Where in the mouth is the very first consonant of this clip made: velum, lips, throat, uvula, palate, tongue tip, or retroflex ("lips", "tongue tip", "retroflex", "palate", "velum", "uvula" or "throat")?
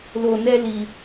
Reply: tongue tip